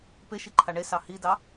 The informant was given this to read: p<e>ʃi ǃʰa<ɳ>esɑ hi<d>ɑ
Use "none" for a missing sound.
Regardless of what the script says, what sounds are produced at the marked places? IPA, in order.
e, ɳ, d

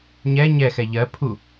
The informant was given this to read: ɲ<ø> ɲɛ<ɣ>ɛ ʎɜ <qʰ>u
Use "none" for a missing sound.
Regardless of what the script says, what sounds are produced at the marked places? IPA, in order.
ɛ, x, pʰ

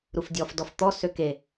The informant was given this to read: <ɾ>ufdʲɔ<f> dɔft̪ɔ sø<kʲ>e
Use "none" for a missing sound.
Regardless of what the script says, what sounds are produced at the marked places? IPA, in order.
ɾ, f, k

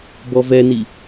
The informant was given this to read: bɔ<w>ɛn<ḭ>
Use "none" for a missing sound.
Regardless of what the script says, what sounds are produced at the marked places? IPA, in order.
v, i

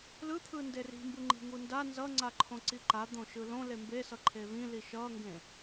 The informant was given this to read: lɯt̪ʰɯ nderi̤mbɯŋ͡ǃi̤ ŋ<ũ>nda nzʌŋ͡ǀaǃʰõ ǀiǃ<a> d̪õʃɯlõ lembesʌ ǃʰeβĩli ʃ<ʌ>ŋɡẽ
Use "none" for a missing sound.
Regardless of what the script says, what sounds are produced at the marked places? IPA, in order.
u, a, ʌ

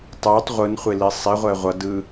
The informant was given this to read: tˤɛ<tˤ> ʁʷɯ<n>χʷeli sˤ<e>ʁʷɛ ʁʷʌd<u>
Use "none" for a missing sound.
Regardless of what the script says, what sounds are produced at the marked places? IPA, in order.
tˤ, n, i, ɯ

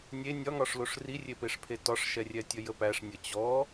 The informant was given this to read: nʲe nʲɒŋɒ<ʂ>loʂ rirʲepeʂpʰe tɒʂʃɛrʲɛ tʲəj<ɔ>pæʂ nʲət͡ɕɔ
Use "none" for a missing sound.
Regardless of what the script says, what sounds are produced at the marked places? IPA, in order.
ʂ, ə

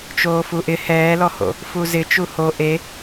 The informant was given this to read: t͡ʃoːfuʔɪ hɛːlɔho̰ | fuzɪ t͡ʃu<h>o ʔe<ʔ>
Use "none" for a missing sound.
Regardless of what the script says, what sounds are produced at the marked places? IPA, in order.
h, none

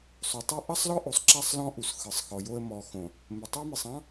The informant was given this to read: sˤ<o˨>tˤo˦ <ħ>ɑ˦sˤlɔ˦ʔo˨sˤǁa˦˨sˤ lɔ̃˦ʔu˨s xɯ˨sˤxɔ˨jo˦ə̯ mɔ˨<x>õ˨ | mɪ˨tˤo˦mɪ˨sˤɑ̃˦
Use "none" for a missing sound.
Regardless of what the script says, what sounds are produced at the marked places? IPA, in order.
o˨, ʔ, x

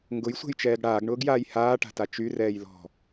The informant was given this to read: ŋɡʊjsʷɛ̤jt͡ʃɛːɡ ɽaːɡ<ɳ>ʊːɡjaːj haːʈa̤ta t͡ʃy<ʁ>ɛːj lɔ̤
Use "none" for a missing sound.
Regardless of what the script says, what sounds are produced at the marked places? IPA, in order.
ɳ, r

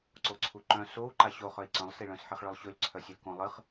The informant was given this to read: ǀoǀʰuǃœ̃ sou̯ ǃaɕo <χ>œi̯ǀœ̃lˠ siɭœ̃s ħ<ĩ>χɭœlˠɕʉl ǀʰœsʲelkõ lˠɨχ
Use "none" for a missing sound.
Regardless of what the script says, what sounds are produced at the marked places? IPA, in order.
χ, i

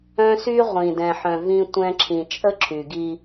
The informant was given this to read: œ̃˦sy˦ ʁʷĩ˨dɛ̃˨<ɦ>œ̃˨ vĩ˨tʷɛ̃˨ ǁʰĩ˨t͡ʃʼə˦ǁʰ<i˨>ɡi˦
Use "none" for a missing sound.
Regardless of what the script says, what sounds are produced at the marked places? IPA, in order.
ħ, y˨

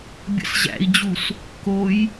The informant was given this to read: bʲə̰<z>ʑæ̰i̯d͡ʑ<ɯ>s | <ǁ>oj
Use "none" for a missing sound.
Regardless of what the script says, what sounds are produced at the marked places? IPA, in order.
s, u, k

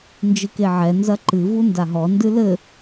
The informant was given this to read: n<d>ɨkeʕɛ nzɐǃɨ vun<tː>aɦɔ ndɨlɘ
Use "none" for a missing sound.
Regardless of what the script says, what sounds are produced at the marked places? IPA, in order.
d͡ʒ, d

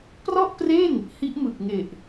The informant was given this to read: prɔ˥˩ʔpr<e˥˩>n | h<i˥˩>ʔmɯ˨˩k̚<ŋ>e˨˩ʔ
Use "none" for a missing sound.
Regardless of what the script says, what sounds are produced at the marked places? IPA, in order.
e˥˩, i˦˥, ŋ

